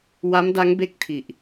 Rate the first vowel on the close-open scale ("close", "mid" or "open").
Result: open